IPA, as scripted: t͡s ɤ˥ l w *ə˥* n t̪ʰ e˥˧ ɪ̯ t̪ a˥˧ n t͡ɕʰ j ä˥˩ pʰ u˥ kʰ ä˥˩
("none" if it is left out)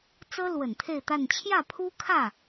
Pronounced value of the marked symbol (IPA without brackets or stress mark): ə˨˩